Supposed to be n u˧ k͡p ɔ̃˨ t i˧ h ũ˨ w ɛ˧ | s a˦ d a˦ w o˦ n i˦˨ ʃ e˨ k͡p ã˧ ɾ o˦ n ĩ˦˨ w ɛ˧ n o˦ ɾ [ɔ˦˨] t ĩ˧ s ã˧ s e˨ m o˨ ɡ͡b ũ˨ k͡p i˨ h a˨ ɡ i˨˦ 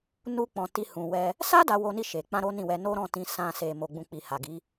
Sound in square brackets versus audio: incorrect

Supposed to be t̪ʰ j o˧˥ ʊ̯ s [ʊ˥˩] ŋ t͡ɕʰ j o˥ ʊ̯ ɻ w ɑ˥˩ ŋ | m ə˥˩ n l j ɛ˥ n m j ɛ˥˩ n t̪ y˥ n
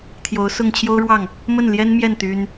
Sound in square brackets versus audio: correct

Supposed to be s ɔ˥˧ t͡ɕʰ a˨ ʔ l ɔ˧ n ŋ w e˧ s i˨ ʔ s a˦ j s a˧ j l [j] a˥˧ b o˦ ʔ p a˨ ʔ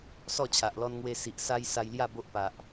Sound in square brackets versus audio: correct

